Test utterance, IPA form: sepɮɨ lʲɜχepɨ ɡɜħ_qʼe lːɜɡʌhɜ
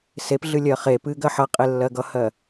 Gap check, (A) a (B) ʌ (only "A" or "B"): B